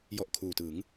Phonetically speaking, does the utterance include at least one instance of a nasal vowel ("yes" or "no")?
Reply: no